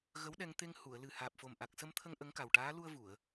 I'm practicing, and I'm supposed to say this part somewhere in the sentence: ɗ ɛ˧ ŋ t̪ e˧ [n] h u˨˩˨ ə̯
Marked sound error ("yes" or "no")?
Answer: yes